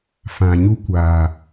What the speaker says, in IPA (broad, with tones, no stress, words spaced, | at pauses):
fã˨ɲu˧kʷaː˨